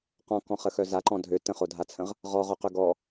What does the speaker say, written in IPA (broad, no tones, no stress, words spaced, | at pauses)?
qɔ̃kɔ̃χəxœ zaǃɔ̃ dʱø tə̃χodʱat͡sʰə̃ʁ | ʁɔʁoqø ɡɔ